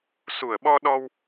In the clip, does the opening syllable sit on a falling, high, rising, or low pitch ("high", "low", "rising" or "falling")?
low